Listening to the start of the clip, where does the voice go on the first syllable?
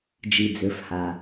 low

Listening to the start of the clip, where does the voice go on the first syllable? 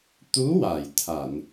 rising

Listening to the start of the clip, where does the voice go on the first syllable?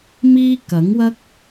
high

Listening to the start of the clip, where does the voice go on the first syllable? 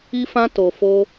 high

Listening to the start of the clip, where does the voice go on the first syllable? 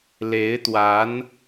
rising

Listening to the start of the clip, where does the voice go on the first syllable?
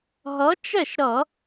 rising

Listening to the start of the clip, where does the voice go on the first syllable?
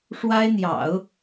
high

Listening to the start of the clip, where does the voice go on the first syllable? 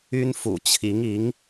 high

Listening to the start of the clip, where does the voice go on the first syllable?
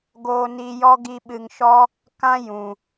high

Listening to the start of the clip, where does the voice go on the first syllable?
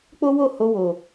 high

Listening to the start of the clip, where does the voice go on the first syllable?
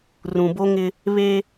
low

